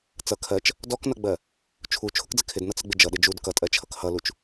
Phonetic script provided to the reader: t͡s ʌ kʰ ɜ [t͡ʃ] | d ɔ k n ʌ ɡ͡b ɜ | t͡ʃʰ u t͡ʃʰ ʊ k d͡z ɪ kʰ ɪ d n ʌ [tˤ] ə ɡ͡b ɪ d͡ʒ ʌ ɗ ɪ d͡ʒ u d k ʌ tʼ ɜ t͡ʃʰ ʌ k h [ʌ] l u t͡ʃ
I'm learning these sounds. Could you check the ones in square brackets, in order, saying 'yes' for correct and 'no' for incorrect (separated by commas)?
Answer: yes, no, yes